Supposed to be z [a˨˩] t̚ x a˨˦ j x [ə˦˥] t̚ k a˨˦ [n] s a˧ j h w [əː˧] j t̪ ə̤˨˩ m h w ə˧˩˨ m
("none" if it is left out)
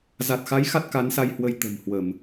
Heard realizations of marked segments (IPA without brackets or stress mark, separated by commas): a˨˩, a˦˥, n, ə˧